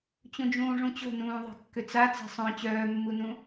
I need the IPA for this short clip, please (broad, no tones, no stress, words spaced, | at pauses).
t͡ɕũd͡ʒũːʐũt͡ɕo̤ nũːðˤe̤kːʏt͡sa t͡se̤sˤœ̃ t͡ɕœːmːunũ